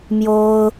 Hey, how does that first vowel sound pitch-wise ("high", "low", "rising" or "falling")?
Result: high